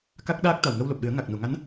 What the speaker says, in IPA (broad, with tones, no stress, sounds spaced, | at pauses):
k a˦˥ k̚ ɗ aː˦˥ k̚ t̪ a˨˩ w ŋ ə˧ w l o˨˩ p̚ ɗ ɨ˨˩˦ ə̯ ŋ a˨˩ k̚ n u˨˩˨ ŋ a˧˥ n